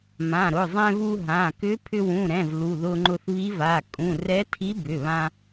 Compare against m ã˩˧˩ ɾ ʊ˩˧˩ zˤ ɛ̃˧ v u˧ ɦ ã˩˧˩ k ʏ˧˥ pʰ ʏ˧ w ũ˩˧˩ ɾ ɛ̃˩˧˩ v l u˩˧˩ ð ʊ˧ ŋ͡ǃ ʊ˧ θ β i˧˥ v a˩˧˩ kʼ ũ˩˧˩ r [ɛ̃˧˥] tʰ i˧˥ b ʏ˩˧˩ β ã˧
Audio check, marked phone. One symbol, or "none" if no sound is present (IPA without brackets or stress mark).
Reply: ɛ˧˥